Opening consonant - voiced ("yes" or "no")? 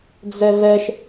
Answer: yes